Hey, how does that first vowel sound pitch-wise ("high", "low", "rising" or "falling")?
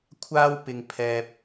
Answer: high